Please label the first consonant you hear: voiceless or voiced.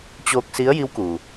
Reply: voiceless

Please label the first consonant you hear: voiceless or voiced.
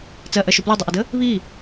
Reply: voiceless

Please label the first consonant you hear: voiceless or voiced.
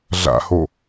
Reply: voiced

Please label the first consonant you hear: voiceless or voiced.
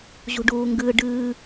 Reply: voiced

